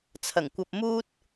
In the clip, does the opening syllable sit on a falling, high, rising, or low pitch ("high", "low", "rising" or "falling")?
low